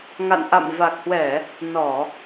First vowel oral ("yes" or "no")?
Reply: yes